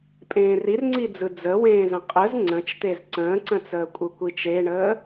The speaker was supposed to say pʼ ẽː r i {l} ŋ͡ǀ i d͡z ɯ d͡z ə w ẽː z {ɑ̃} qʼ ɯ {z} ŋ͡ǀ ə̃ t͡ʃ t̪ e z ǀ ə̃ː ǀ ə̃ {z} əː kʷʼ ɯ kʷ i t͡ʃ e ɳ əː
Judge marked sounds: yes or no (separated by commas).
no, no, yes, no